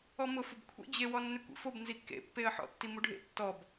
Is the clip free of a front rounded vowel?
no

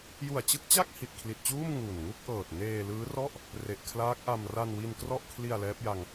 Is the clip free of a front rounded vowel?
yes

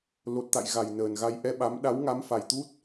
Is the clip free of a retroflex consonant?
yes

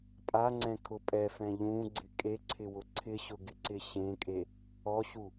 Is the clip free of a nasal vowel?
no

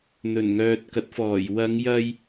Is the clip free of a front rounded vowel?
no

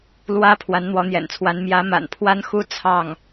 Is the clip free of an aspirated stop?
no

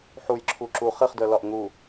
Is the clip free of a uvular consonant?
no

